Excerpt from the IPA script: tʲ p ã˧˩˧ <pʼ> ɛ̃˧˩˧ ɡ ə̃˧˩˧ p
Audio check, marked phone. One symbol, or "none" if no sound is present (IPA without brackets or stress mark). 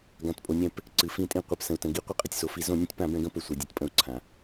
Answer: b